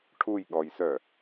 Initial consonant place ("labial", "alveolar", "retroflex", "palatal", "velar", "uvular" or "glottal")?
retroflex